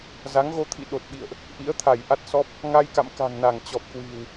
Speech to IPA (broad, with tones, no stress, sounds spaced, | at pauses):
z a˨˦ ŋ ɣ o˧ t̪ʰ ḭ˧˨ ɗ o˨˩ t̚ ɓ ḭ˧˨ ə̯ ʔ | ʔ ḭ˧˥ ə̯ t̪ʰ a˧˩ j ʔ a˦˥ t̚ s ɔ˦˥ p̚ | ŋ a˧ j k a̰˧˨ m k a̤˨˩ ŋ n a˧˩ ŋ t͡ɕ ɔ˨˩ p̚ k w i̤˨˩ w